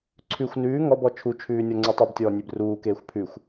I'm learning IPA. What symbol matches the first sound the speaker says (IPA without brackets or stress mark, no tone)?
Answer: ǀʰ